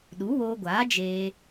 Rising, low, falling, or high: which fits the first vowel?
rising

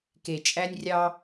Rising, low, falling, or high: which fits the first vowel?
low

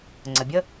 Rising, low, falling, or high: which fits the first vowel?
low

